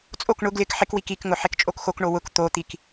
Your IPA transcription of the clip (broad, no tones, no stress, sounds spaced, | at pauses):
t͡sʼ o k ɳ ʊ ɡ l ɪ k ħ ɪ k w i k i k ŋ ʊ ħ e k t͡ʃʼ o k x o k ɳ o w ʊ k t̪ o t̪ i k